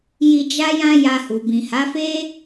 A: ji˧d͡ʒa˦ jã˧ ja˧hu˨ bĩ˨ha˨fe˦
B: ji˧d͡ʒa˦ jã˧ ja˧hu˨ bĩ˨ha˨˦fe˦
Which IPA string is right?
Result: B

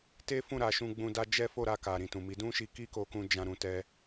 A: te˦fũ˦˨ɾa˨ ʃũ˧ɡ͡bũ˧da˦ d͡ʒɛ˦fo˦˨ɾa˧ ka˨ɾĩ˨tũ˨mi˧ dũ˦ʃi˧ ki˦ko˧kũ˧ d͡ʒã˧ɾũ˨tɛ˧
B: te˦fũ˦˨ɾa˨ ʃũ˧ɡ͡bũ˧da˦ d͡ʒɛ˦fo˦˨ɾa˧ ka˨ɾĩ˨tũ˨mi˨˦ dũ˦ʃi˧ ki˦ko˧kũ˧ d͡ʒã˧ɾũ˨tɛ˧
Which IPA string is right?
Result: B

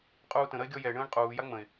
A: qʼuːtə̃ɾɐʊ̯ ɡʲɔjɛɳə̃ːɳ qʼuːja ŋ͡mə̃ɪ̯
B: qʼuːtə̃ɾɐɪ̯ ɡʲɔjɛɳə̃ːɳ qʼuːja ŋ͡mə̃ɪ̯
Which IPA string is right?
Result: B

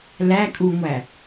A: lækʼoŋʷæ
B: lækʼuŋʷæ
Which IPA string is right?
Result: B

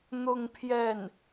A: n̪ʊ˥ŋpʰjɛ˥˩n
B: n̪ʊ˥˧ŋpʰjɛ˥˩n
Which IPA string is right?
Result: B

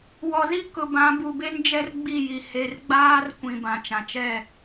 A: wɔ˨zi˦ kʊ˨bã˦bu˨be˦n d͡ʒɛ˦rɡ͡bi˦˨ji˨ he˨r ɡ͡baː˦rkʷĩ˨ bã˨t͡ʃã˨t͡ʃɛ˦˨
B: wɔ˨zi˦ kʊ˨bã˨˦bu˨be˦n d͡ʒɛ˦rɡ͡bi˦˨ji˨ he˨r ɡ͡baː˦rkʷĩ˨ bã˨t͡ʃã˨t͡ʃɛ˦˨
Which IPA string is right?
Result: B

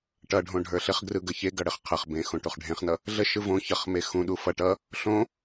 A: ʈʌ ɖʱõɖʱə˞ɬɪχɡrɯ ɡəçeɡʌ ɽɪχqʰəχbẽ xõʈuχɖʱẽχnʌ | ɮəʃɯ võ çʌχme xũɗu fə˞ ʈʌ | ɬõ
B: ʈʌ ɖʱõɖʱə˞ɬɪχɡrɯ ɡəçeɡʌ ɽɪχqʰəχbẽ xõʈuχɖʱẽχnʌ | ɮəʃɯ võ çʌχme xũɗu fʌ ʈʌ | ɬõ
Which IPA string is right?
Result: B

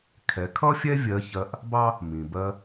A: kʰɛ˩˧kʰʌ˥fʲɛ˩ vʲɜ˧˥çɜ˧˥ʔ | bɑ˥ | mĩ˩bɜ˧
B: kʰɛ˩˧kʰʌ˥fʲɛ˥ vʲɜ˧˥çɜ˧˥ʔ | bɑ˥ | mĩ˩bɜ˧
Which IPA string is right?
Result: B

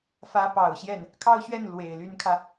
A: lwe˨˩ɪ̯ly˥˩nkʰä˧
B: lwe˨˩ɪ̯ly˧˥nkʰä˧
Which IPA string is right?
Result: B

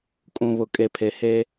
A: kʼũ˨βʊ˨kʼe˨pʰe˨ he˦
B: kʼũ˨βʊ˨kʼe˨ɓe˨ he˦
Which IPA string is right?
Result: A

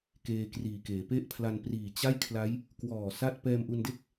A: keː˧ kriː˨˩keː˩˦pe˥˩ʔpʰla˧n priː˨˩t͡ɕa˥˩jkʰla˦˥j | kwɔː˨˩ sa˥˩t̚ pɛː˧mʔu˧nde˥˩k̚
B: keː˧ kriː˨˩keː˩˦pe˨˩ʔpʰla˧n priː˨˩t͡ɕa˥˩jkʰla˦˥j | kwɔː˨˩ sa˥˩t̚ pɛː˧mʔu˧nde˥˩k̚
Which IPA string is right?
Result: A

